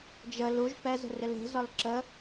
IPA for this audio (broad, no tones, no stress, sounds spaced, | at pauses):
d͡ʒ ə l u ʒ p ɛ z ə̤ r ɪ l e̤ z ɒ l ǁ ə